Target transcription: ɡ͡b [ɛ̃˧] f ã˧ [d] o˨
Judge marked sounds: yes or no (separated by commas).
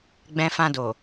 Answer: yes, yes